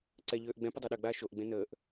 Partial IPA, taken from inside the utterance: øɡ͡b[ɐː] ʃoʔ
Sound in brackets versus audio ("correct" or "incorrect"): incorrect